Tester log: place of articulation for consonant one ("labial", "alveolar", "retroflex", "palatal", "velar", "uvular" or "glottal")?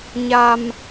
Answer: palatal